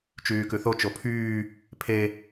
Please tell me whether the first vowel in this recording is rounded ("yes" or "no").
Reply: yes